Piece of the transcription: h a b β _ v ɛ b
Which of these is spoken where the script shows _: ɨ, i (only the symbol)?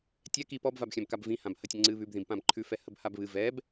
ɨ